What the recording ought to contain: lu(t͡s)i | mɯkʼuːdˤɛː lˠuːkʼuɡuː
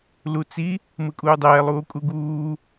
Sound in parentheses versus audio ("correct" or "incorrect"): correct